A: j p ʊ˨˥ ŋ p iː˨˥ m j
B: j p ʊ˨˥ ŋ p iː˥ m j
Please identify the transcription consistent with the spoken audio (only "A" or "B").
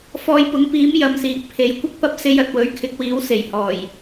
A